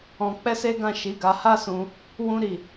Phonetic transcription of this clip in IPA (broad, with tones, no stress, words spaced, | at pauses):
ɔ̃˧k͡pɛ˦se˦ɡã˦˨ ʃi˨˦ɡa˧ha˦sũ˧ | wũ˦ɾi˦˨